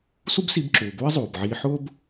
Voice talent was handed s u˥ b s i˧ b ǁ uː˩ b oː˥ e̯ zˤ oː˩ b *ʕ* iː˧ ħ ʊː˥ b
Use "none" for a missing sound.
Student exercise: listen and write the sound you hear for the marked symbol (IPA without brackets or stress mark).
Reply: ʕ